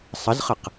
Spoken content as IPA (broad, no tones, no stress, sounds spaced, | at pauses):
sˤ ə z χ ə q